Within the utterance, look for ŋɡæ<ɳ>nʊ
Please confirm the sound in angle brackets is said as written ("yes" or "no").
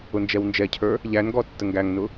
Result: no